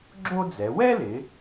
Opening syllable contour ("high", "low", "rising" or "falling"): high